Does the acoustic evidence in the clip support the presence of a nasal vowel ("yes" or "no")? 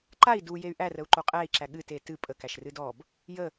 no